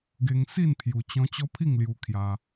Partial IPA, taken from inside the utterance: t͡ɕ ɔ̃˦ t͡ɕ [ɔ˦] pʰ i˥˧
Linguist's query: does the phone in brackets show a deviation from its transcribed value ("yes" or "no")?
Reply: no